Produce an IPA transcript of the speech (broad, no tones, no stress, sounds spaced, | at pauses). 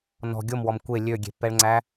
n ɔ̤ ɡʲ o m w ɔ m kʷ e lʲ ø ɡʲ e̤ pː ɛ ɭ ŋ͡ǀ æ